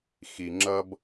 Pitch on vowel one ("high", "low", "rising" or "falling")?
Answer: low